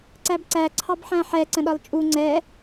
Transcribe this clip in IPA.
ǀæbǀæ ǀʰɑbħæ̃ħɛ ǀə̃ɗɒlt͡ʃʼu ŋ͡ǀɛ

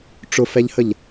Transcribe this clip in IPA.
ʈ͡ʂʊfɛʎhəʎ

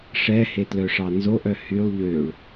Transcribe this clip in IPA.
ʂɛhetlœʂɑ nzoʔœ hylˠ ʎøɭ

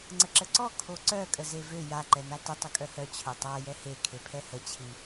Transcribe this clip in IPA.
ŋ͡ǀəǁəǀɔ kʰoǀœ kʼəzevø ja ǃɛnatə tˤəkʼœhœ t͡ɕʰœtˤa jɛhe kʰepʰɛhə t͡ɕʰi

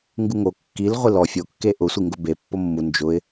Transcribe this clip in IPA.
ŋɡuŋo kːil ʁʷilɔ fʲo kːeʔʊ sʷiŋɡʊbe pːomːu nd͡ʒʊɪ̯

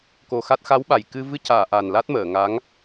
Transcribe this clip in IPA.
ko˨˩ xa˦˥t̚ xa˧˥wɓa˨˩jkɨ˧ vɨ˧caː˨˩˨ ʔa˨˩nla˦˥t̚məː˨˩˨ ŋa˧˥ŋ

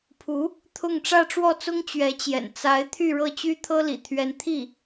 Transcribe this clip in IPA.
pʰu˧˥ | t̪ʰʊ˥˧ŋ ʈ͡ʂä˥˧ʈ͡ʂwɔ˥˩t͡sʊ˥ŋ t͡ɕɥɛ˧˥t͡ɕjɛ̰˨˩n t͡sa˧˥ɪ̯ t̪ʰy˥˧ɻɤ˥˩ t͡ɕy˥t̪ʰɤ˥lḭ˨˩ t̪ʰɥɛ˧˥nt̪ʰi˥˩

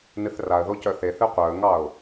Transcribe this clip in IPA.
nɨθraə̯ðo cœθeθɨ qʷœə̯ŋɑʊ̯

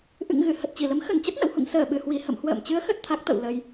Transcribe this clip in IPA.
ʔɨ̰˧˨ŋɣɨ˧˩ hə˨˩t̚t͡ɕi˧˩lə˨˦m xə˧˩nt͡ɕə˦˥t̚ nə̰˧˨whṵ˧˨ŋ səː˧˩ɓɨ˧˩hwi˧˩ hə̰˧˨mhwə̰ː˧˨mt͡ɕɨ˨˦ə̯xə˨˩t̚ t̪ʰa˦˥k̚t̪ə̰˧˨w lə˧j

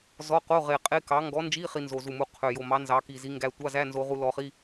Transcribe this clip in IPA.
zɔ˧˥˧ qo˧˥˧ʁe˨˩qʼe˧˥˧ kɑ˨˥ ŋɡɔ˨˥nd͡ʒi˧˥˧ χi˧nzo˨˩zu˨˩mu˨˥ qʰø˨˩jo˨˩mɑ˨˥ nzɑ˨˥ki˨˩zi˨˥ ŋɡæ˧ tʷɑ˧˥˧zæ˧˥˧nzo˧ʁu˧ lɔ˧χi˧˥˧

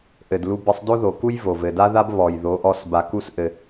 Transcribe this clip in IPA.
ʔɘ˨dlu˧bɘ˧sˤ do˦ðo˨ku˦j vo˨vɘ˨da˦ða˦b βɔ˨jðo˨˦ʔɔ˧s ba˧ku˦sʔɘ˧

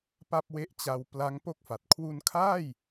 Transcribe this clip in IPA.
pa˥˩p̚we˦˥ʔ t͡ɕa˧wpla˦˥ŋ po˥˩k̚fa˨˩t̚ kʰwu˧nkʰaː˥˩j

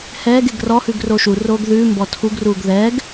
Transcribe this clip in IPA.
hɛːɡ eɡrɔhʉɡ roʃuroːɡ ðʉː mbɔtʰuɡruːɡ ðɛːɡ

